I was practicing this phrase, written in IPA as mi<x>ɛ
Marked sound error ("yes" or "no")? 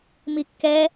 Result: yes